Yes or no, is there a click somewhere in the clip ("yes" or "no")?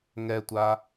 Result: no